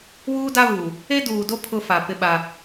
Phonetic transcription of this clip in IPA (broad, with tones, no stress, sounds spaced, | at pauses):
w uː˦ d a˦ v uː˨ | e˦ d uː˨ d o˦ pʰ ʊ˦ f a˨ p ɪ˦ ɓ a˦